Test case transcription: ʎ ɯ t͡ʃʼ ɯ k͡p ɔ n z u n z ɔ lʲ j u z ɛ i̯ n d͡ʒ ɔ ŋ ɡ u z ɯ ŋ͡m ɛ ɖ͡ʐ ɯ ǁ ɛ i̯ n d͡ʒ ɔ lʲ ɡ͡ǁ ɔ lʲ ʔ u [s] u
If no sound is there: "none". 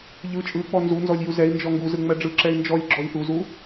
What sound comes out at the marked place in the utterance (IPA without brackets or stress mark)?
z